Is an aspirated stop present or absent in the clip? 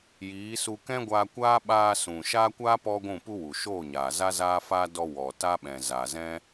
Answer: absent